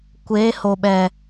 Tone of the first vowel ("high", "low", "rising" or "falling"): rising